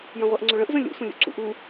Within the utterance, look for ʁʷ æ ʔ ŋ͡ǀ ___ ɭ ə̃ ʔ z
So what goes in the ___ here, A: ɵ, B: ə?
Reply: A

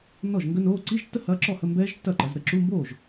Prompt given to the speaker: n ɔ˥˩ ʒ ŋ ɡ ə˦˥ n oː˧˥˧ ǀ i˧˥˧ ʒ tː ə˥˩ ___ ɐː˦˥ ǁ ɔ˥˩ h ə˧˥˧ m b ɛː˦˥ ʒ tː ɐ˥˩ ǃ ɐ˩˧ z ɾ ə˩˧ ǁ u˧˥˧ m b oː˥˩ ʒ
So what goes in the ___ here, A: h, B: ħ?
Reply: A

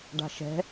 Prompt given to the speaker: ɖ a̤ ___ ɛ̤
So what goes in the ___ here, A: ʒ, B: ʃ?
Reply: B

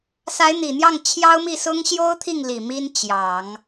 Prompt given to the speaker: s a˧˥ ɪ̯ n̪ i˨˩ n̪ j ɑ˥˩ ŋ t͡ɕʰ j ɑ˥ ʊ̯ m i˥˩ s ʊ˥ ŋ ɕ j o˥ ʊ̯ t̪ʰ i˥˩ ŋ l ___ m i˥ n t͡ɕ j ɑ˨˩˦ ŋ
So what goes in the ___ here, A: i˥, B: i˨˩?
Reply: B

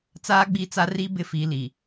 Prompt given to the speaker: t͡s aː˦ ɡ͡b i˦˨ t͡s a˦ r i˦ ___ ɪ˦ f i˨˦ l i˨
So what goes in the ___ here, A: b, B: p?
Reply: A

